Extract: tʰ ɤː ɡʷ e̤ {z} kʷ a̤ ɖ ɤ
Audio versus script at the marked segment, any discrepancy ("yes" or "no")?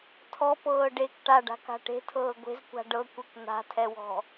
no